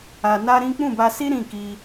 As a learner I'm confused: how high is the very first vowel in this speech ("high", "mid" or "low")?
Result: low